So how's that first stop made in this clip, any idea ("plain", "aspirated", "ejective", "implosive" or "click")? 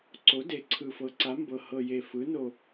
click